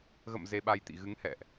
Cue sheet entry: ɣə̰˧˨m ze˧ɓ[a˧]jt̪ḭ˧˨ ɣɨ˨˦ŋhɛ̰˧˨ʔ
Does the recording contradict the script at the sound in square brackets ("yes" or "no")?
no